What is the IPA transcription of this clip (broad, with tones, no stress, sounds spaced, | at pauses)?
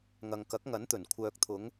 ŋ ɐ˨ ŋ k ɐ˨˥ k̚ ŋ ɐ˨˥ n t̪ ɵ˨˩ n kʷʰ œː˨ k̚ t̪ʰ ʊ˨˧ ŋ